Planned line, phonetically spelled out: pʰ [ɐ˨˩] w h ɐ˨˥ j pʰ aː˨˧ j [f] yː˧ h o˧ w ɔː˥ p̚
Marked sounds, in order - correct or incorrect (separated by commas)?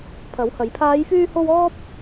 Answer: incorrect, correct